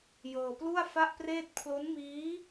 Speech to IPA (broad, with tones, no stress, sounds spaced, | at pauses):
j ɤː˧ p l u˥˩ a̯ f a˥˩ ʔ p r eː˥˩ t̚ pʰ l o˦˥ n m iː˦˥